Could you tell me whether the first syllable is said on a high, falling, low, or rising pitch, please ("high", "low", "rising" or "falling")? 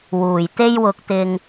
low